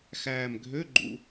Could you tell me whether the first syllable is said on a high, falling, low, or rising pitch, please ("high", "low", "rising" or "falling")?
low